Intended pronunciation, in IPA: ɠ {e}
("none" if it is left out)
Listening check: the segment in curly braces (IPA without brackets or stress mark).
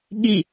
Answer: i